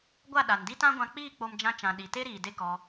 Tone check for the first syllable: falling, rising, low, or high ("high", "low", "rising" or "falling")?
falling